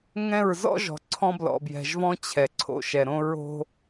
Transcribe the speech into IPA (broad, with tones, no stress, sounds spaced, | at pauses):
ŋ ɛ̃˦˨ ɹ z ɔ̰˦ ʒ ɔ̤˨ ǀʰ ɔ̃˦ b l ɔ̰˨ b j ɛ̤˨ ʒ v ɔ̃˦ t͡ɕʰ ɛ˨ ǀʰ o̰˨ ʃ ɛ˨ ɾ õ˦ ɹ o̤˦